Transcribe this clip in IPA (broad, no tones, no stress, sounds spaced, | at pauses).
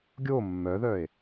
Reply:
ɡʲ o mː œ ð œ e̯